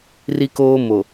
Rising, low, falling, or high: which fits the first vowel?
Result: high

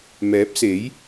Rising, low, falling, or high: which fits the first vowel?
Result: rising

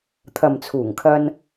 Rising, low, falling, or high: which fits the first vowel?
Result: low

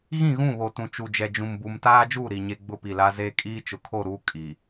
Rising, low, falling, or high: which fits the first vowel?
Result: falling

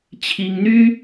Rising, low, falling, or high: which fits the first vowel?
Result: high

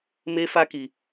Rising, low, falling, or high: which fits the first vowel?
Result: high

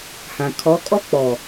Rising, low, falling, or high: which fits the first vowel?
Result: low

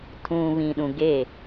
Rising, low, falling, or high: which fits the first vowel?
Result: low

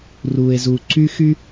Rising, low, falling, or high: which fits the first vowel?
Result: low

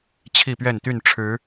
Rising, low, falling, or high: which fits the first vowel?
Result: falling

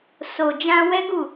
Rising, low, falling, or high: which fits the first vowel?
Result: low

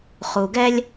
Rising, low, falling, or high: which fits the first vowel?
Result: low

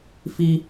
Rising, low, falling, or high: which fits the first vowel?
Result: high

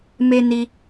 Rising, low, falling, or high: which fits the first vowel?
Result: high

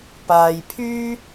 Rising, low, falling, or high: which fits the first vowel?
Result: low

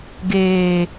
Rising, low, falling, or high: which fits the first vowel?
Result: low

